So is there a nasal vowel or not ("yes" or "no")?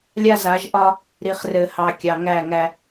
no